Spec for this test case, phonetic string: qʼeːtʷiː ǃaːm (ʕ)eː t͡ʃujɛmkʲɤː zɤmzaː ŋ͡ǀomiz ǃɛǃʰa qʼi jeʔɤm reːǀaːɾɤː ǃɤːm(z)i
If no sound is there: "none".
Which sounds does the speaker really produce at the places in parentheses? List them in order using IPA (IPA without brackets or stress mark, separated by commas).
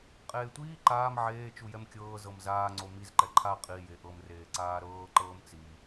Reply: ʕ, t͡s